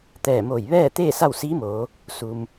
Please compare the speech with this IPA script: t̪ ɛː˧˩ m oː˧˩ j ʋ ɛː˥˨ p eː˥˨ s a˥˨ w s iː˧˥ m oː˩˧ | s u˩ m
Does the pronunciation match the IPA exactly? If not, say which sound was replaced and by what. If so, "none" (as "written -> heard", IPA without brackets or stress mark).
p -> t̪